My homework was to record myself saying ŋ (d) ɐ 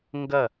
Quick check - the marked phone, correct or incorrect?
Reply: incorrect: ɡ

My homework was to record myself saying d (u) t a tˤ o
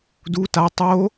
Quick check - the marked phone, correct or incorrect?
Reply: correct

